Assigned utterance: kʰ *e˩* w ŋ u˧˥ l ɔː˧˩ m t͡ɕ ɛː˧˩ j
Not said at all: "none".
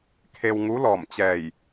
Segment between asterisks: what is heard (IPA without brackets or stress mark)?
e˧